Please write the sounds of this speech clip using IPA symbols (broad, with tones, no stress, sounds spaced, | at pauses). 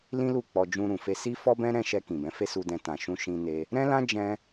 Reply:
l ĩ˦ l u˦˨ k͡p ɔ˧ d͡ʒ ũ˧ ɾ ũ˨ f e˧ s i˦ f ɔ˦ b ɛ̃˦ ɾ ɛ̃˦˨ ʃ ɛ˧ k ĩ˨ b ɛ̃˨˦ f e˦ s u˧ d ɛ̃˧ t ã˨ ʃ ũ˧ ʃ ĩ˧ n e˧ | ɾ ɛ̃˦ l ã˦ d͡ʒ ɛ̃˦